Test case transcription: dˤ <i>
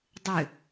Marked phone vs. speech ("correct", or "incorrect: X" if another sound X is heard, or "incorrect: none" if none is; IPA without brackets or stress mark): incorrect: ɨ